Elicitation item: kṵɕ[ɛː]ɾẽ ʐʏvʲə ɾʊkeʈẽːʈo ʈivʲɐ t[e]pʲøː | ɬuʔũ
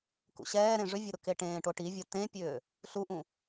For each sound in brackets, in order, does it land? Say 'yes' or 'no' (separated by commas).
yes, no